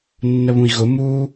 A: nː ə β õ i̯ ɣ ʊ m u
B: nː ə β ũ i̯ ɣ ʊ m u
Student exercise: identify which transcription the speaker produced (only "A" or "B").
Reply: B